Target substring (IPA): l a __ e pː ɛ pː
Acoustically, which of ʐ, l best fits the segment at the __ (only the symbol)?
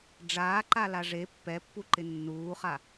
ʐ